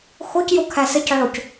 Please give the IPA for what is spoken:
x o c j o kʰ æ s ə c ʕ o c

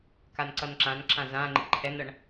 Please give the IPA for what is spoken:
k a n ǀ ʌ n ǁ ã n ǁ ã z ã ŋ͡ǃ ḭ ǃʰ ɛ n ʌ ɳ

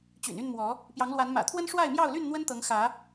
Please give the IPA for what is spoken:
t͡ɕ y̰˨˩ n y˥˨ n m w ɔ˨˦ | p j ɑ˨˦ ŋ l w a˨˦ n m ä̰˨˩ t̪ʰ w ə˦ n ʂ w a˥˨ ɪ̯ m j ɑ˥˨ ʊ̯ l y˥˨ n n̪ w ə˦ n t̪ ɤ˨˦ ŋ x ä˨˦

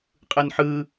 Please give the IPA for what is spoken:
qʼ ɯ n ħ ɯː

